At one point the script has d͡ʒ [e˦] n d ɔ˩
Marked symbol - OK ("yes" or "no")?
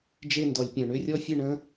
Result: yes